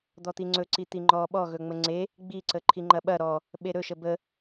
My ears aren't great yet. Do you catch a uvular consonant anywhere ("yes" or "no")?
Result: no